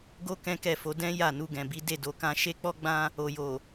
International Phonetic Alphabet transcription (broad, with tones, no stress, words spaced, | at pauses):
ɡo˦ kɛ̃˦kɛ˦˨fo˧ dɛ̃˦ ja˦˨nu˧ɡɛ̃˨bi˨˦ de˦˨do˧kã˦ ʃe˦k͡pɔ˦ ɡ͡bã˦ | o˨jo˨